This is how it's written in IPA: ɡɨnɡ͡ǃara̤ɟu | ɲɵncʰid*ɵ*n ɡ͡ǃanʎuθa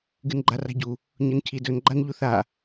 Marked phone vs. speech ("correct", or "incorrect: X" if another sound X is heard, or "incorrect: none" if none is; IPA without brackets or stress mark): correct